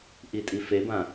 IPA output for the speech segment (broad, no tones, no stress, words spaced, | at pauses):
ʔitʼifebã